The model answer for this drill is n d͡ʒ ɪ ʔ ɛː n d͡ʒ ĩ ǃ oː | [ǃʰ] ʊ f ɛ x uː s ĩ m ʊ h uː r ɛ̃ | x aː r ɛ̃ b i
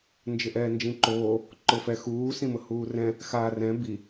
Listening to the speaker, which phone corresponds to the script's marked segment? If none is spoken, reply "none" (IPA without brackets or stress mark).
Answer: ǃ